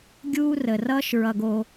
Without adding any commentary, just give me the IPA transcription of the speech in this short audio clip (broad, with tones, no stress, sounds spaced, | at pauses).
ɡʲ uː˥ r ə˩ r ʌː˥ ʃ ɹ ʌ˨ ɡ o˨